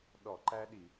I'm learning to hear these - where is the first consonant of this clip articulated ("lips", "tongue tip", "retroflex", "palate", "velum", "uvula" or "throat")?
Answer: tongue tip